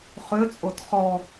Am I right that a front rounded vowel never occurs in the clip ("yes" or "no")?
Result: no